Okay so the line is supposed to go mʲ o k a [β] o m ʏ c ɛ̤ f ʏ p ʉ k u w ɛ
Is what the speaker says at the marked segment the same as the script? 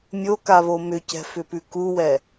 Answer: yes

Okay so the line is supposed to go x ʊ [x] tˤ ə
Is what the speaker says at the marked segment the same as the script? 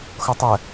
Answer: no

